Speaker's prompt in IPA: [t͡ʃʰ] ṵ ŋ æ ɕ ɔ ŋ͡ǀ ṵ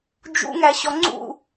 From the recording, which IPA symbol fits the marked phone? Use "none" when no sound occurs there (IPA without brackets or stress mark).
d͡ʒ